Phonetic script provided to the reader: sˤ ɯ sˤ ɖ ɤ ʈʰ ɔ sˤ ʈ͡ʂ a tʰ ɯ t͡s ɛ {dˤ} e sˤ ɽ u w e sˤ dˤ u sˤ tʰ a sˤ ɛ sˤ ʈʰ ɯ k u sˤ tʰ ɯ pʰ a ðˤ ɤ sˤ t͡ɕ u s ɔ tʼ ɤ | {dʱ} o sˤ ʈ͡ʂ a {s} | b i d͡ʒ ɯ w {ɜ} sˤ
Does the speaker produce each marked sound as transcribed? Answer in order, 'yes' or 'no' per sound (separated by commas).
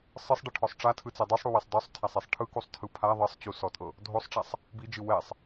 yes, yes, no, no